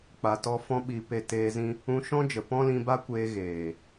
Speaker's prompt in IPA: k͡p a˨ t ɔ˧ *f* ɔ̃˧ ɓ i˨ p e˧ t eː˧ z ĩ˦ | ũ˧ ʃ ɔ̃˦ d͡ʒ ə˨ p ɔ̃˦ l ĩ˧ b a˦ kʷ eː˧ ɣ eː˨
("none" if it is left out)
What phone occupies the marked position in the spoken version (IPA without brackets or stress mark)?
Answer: f